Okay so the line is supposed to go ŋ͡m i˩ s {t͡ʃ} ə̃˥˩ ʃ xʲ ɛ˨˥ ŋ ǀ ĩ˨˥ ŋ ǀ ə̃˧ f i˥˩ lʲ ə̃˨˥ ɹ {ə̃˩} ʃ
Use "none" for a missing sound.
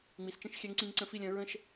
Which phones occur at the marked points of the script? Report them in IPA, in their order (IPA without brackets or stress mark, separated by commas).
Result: t͡ʃ, ə̃˥˩